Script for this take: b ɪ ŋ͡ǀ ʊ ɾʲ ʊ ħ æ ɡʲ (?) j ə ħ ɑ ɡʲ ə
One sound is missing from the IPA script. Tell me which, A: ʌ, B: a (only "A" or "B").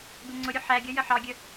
A